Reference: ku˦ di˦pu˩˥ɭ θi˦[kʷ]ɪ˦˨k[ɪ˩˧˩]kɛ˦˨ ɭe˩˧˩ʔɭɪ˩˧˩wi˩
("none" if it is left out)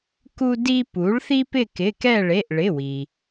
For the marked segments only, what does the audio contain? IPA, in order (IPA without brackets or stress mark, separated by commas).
p, ɪ˩˧˩